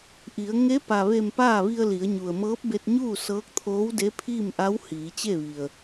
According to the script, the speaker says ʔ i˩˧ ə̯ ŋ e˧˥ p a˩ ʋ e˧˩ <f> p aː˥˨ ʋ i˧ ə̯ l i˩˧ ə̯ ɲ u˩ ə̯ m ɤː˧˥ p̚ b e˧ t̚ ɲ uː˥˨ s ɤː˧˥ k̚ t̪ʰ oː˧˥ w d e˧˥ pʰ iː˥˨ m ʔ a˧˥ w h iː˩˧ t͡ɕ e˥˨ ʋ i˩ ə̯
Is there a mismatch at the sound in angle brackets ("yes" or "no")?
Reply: yes